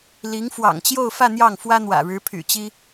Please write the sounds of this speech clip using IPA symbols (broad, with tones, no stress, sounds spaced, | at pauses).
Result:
l i˧˥ ŋ f w ɑ̰˨˩ ŋ t͡ɕ j o˥˧ ʊ̯ f ä˥˧ n̪ j ɑ˥˩ ŋ f w ä˥ n̪ w ä̰˨˩ ɻ ɻ̩˧˥ pʰ y̰˨˩ t͡ɕ i˥